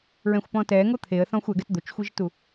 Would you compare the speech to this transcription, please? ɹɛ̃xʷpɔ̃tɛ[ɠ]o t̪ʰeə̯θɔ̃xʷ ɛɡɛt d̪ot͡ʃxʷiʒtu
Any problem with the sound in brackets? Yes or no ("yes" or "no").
yes